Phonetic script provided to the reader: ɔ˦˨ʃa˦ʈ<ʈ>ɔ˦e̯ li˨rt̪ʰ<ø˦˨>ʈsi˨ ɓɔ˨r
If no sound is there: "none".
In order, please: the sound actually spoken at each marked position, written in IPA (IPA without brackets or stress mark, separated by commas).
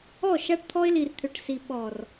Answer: t̪ʰ, ø˨